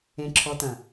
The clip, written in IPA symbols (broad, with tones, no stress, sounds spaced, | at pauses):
ẽ˨ ǁʰ ɔ˨ t ɐ̃˨